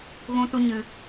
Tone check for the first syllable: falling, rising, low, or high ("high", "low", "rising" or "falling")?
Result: high